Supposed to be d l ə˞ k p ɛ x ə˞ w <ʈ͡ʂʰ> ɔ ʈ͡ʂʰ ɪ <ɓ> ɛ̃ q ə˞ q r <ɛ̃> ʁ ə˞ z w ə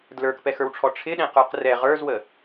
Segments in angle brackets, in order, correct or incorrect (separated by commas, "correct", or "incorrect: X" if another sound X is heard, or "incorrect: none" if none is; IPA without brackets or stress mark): correct, incorrect: ɗ, incorrect: ɛ